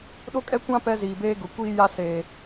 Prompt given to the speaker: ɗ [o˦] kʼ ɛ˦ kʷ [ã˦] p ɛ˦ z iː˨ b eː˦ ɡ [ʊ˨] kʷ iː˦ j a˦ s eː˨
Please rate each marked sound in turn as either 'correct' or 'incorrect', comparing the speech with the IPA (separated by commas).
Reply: correct, correct, correct